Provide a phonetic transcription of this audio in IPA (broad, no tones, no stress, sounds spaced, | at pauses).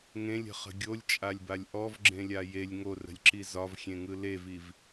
ŋ ẽ lʲ ə̤ χ ə̤ ɡʲ o lʲ t͡ʃʼ a lʲ b a lʲ ʔ ɔ v ɡ͡ǁ ẽ lʲ a j e lʲ ŋ o r ə̤ lʲ ǁ i z ɒ v xʲ ẽ ŋ ɯ l e v i v